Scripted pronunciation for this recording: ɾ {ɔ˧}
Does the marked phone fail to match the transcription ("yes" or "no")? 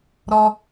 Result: no